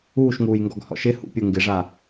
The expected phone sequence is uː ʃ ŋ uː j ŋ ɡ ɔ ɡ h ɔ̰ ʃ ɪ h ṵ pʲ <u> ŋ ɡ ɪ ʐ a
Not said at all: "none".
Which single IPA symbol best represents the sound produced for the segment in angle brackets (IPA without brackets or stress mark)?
u